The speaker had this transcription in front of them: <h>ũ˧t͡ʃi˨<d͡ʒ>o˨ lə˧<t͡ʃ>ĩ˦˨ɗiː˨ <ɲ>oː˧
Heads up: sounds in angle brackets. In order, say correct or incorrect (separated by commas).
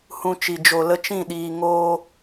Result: correct, correct, correct, incorrect